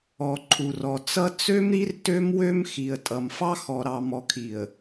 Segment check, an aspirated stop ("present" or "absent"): present